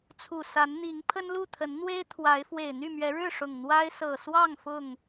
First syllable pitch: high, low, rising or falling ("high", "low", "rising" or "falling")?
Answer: low